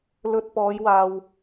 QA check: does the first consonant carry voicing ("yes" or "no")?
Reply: yes